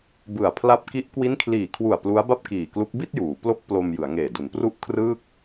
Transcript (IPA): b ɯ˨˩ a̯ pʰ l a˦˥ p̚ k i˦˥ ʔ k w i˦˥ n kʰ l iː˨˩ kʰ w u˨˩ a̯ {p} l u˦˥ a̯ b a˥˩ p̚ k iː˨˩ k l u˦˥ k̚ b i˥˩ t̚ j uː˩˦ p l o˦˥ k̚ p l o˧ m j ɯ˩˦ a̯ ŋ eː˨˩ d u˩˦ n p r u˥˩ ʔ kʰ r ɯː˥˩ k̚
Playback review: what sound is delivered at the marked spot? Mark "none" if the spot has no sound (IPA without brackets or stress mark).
p